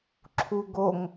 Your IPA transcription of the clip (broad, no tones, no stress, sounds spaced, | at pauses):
ǁʰ u ɡ o ŋ